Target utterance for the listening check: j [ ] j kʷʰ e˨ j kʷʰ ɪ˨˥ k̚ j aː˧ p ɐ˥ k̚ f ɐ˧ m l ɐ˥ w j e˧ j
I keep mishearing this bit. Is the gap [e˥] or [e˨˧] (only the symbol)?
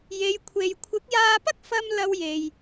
e˨˧